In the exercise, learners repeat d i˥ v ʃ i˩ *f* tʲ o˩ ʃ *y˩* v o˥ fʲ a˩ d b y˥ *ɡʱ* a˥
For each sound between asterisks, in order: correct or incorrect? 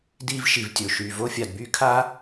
incorrect, correct, incorrect

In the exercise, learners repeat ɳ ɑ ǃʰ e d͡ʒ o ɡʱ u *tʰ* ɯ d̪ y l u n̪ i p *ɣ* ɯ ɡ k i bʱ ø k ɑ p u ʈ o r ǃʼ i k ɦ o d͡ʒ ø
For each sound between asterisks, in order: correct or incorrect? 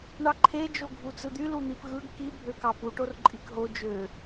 incorrect, correct

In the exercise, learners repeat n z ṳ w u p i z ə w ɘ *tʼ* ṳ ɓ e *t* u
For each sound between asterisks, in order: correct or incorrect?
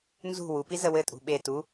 correct, correct

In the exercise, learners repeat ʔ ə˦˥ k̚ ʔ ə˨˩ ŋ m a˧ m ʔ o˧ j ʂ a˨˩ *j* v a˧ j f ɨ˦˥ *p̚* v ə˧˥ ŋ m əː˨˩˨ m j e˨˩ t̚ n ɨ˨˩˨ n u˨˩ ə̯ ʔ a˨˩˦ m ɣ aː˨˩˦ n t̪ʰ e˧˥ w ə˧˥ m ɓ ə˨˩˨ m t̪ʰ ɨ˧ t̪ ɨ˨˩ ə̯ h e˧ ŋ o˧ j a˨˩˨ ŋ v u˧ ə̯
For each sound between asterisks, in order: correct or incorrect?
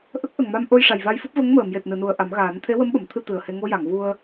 correct, correct

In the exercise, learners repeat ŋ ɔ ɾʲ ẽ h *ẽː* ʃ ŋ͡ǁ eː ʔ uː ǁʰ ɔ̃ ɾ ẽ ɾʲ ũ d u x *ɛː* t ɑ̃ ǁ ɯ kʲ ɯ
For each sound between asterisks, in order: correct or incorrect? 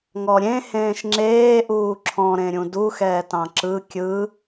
correct, correct

